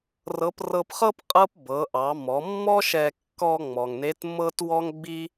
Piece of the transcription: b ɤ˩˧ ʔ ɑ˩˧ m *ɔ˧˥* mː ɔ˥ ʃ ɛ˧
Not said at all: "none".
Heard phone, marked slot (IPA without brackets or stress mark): ɔ˩˧